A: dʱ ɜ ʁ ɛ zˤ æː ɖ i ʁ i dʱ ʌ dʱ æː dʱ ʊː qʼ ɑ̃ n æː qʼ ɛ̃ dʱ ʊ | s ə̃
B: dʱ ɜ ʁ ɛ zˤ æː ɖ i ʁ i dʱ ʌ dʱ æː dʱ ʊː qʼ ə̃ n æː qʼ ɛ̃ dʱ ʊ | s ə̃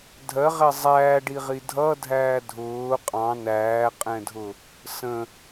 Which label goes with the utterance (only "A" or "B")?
A